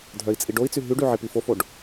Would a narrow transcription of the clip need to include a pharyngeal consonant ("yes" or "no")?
yes